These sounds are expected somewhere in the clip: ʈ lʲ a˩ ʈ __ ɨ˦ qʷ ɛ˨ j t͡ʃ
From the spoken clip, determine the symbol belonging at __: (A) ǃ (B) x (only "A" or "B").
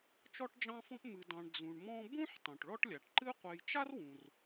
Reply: A